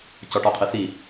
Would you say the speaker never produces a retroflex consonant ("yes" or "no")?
no